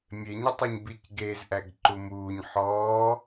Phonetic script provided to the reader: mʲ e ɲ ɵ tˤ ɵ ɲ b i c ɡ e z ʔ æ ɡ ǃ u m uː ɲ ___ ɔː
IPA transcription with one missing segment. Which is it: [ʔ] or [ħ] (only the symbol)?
ħ